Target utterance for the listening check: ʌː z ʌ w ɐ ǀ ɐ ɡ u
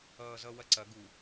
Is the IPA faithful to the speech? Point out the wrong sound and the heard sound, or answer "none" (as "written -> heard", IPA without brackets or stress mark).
none